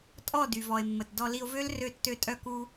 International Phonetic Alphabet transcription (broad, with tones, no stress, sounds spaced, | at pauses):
tʼ ɔ˦˨ d y˨ v ɔ˨ e̯ mː ə˨ t d ɔ˧ l i˧ o̯ v ø˦ l r ø˧ tː ø˧ tʼ œ˧ k u˧